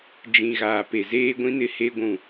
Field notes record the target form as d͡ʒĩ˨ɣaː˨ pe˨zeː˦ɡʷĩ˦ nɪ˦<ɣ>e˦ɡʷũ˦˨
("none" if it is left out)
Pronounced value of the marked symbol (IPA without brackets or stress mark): h